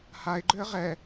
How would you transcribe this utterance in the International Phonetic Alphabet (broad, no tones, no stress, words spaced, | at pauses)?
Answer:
haɪ̯ɡ͡ǃʏə̯ ʁɛ